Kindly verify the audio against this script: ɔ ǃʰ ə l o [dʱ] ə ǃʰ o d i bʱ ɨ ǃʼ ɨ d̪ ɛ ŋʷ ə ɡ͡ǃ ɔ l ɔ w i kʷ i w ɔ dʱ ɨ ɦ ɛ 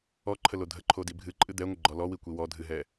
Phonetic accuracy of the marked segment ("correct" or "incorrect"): correct